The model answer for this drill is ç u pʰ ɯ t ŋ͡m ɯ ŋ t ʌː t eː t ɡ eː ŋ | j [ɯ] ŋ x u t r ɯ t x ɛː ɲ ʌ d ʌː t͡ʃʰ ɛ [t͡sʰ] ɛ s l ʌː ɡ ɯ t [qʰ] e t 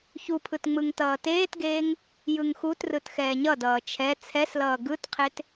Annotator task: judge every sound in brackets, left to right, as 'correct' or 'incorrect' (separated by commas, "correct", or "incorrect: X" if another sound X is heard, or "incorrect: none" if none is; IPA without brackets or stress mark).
correct, correct, correct